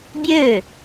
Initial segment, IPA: bʲ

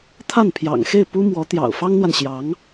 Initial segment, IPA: t̪ʰ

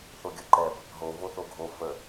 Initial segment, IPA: θ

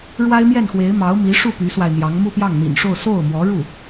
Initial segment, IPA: ɻ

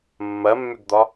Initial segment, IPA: mː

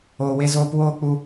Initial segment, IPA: oː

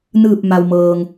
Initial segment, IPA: n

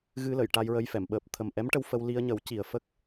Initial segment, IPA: ɣ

